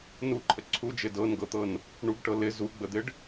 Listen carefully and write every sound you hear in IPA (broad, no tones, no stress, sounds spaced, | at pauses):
n u ǃʰ ə ǀʰ u d͡ʒ ɪ d ɤ n ɡ ɤ t̪ ɤ n | ɳ u ɡ ʈ ɤ l ɪ z u ɡ͡b ə d̪ ɪ ɖ